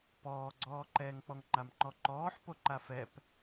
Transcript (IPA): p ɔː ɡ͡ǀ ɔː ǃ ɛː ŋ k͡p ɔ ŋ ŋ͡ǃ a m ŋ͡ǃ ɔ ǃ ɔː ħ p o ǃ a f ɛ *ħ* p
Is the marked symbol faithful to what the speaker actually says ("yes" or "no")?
no